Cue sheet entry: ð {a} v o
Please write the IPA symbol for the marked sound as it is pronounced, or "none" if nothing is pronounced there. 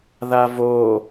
a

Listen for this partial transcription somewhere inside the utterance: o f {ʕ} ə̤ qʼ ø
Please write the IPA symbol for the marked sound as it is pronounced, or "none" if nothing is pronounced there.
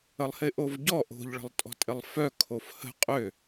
h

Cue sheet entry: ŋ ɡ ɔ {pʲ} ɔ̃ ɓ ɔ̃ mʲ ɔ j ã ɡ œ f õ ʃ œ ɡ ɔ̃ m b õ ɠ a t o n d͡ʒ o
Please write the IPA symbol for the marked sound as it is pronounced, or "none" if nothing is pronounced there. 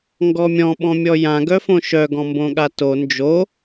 mʲ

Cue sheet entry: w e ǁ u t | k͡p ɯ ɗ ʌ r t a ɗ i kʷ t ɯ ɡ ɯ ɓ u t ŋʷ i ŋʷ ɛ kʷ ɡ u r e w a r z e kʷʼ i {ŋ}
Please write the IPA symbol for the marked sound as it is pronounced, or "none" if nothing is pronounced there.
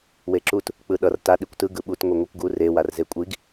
ɡ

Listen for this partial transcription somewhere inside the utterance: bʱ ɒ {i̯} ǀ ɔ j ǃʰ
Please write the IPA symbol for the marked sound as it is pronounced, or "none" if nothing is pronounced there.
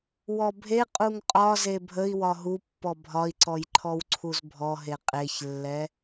i̯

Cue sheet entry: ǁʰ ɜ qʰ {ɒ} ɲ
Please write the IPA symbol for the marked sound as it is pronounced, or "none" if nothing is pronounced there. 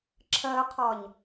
ɒ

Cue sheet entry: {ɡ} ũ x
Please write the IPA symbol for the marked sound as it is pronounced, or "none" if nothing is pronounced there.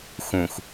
x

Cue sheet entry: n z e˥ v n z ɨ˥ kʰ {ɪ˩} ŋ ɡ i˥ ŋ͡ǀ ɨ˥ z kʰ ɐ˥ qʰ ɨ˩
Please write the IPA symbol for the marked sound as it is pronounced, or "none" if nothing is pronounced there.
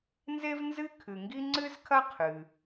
ɨ˩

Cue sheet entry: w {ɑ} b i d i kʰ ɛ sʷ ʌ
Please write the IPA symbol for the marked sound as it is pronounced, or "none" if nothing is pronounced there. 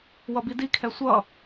ʌ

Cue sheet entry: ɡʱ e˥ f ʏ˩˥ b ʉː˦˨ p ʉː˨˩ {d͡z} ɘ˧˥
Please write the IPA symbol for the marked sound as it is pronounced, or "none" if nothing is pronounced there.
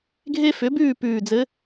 d͡z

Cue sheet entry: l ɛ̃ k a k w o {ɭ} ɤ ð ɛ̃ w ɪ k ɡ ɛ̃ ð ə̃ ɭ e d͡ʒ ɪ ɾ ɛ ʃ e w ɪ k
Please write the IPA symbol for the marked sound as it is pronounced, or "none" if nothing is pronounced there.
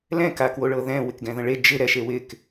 ɭ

